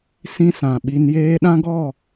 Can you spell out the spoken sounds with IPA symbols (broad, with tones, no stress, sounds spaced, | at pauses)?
s ĩ˦ s ã˨ ɓ i˧ n j eː˧ ɗ ã˦ ɡ ɔ˦˨